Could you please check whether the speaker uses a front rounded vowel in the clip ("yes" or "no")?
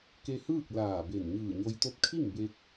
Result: no